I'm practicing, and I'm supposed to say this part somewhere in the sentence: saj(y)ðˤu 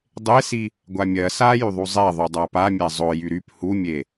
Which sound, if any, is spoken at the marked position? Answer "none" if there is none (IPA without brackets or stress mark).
y